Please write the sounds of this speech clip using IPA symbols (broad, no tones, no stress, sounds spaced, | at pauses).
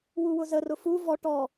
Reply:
w u w ʊ z ə r ʊ f u v ɔ ʈ ɔ